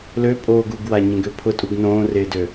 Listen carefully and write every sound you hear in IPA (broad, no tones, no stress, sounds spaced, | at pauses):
l ø pʼ oː ɡ u ɡ w a ɲ ẽ ɡ ø pʰ ʊ tʼ u ɡ n õː r ɪː d ø